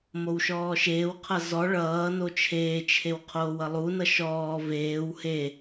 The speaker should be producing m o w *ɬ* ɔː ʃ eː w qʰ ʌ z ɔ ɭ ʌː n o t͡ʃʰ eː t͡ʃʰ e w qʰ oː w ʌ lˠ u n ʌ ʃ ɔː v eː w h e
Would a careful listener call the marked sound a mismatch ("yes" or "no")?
yes